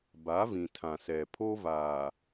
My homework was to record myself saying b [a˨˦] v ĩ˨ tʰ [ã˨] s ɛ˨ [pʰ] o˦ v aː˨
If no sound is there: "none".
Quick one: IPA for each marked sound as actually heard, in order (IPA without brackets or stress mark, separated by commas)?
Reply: a˨˦, ã˨, pʰ